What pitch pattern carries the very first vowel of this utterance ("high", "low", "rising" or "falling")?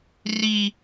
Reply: high